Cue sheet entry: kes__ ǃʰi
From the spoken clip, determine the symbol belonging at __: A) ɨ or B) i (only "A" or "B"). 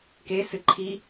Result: A